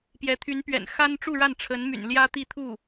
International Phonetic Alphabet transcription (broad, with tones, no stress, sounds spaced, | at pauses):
p j ɛ˧˥ t̪ʰ y˧˥ n p ɥ ɛ̰˨˩ n x a˥ n ʈ͡ʂ u˥˧ ɻ a˥˩ n ʈ͡ʂʰ ə˧˥ n m y̰˨˩ n l j ä˥ t̪ i˥˧ t̪ʰ u˥˩